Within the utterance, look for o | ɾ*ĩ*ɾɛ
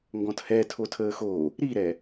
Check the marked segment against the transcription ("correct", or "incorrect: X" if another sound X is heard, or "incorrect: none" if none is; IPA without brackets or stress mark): incorrect: i